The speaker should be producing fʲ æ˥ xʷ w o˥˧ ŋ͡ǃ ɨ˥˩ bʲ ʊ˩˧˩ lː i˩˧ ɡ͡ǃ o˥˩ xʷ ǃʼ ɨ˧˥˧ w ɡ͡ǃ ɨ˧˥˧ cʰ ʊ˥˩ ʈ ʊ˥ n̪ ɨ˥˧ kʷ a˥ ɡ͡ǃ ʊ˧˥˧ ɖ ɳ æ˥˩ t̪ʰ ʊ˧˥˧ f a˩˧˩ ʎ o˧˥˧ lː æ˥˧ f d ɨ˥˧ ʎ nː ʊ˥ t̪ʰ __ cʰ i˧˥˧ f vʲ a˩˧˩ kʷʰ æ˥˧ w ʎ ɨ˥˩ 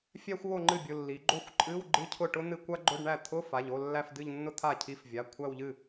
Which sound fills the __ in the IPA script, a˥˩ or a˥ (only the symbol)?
a˥˩